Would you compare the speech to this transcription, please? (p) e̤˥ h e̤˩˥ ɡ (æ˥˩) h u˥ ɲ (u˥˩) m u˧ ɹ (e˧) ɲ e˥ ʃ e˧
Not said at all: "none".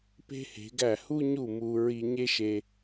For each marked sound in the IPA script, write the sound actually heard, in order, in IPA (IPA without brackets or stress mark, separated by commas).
p, æ˥˩, u˥˩, i˧